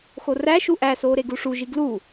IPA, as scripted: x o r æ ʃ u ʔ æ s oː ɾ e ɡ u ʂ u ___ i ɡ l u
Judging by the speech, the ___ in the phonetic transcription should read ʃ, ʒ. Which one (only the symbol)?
ʒ